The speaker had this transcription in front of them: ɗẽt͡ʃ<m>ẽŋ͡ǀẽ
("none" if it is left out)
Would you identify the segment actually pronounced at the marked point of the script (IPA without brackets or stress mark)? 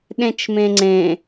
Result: m